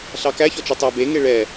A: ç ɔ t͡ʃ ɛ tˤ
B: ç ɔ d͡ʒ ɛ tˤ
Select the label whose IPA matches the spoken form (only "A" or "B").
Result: A